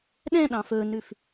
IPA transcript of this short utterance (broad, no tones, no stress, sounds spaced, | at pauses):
ɗ ɛ̃ ɗ ɑ̃ f ɵ n ʉ f